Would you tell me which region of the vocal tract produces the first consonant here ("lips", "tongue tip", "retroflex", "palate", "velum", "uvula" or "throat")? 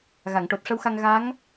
velum